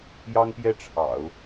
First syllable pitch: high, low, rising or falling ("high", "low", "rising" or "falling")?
high